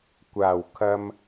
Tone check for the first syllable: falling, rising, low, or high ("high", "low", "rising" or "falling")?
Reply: low